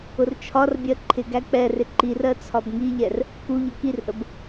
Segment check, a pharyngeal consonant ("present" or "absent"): absent